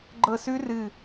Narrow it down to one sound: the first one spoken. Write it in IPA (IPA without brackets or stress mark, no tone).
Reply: ɡ͡ǃ